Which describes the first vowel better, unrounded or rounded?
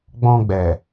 rounded